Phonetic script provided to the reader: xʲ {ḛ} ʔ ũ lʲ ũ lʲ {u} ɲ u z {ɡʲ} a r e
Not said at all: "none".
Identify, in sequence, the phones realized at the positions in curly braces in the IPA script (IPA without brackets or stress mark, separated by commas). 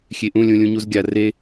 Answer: e, ũ, ɡʲ